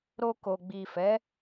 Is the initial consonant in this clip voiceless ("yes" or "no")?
no